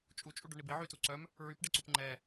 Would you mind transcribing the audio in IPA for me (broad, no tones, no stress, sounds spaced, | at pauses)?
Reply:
t͡ʃʼ u t͡ʃʼ u ɖ œ ɳ i b i ʕ y t u ǀ œ m | ɹ y p ɖ e ǀ u p ŋ͡ǃ ɛ